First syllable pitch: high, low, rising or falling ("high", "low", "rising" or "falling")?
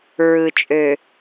low